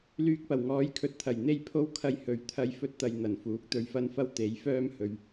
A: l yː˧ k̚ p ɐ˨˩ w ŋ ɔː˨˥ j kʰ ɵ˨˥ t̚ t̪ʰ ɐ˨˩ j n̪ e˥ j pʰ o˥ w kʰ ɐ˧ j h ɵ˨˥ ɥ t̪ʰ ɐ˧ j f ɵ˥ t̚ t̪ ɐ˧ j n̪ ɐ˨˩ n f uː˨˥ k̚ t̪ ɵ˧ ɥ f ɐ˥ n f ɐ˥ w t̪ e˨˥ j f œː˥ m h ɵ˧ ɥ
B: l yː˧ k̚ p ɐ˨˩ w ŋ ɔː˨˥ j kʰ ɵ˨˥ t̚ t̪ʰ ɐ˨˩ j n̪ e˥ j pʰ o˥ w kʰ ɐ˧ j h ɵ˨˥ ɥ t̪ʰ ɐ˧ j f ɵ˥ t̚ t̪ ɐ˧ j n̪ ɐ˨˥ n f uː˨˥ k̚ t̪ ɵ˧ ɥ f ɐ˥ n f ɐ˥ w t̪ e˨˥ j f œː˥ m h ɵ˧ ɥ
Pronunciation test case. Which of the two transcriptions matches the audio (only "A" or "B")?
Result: A